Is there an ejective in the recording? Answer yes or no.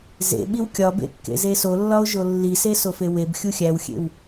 no